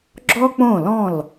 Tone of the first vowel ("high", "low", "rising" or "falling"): high